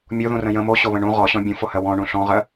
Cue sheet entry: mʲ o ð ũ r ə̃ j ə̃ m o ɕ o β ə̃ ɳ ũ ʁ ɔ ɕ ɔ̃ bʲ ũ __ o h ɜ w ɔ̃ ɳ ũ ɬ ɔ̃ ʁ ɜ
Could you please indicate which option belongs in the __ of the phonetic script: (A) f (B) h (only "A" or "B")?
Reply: A